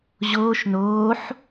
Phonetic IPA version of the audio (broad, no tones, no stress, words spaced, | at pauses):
ʑoːʃ noːħ